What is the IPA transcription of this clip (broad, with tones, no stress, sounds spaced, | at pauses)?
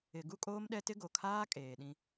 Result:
ɪ˨ ɡ u˦ kʼ oː˦ m ɗ ɛ˦ t ɪ˦ ɡ o˨ kʰ aː˦ kʼ eː˨ ɗ ĩ˦